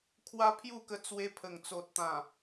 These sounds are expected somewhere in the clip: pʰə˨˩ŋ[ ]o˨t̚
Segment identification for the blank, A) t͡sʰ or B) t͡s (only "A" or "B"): B